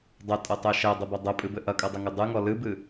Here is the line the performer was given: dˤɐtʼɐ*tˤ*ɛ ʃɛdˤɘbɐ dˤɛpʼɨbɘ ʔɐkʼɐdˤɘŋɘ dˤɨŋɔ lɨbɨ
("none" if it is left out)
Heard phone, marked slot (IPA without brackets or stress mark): tˤ